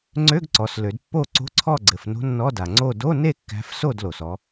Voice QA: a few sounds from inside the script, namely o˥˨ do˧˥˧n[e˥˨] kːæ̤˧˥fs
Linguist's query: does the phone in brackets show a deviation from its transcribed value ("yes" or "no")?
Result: no